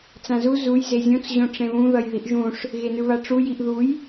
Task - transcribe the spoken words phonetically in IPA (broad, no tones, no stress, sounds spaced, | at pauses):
t͡s ã z u z u j z e zʲ õ t͡s ʑ õ ʈ͡ʂ ẽ β ũ ð ʌ j ð i ʔ ʒ ũ ʂ | ɣ e n ɯ β a ʈ͡ʂ u j i ʔ ð u j